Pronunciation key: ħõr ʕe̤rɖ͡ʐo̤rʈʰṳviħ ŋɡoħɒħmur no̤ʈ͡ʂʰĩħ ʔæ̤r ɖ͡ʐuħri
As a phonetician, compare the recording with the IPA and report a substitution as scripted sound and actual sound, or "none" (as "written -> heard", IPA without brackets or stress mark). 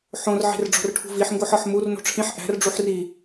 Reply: none